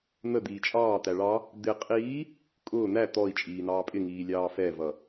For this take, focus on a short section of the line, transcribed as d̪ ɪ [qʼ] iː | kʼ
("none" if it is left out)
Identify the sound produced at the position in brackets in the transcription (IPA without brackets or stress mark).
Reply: qʼ